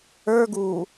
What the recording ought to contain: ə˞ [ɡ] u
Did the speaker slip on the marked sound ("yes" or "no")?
no